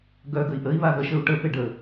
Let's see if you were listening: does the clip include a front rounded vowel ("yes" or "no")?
yes